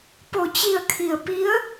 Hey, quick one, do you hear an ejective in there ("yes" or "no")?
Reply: no